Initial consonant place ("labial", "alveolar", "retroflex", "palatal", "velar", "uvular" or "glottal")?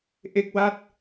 glottal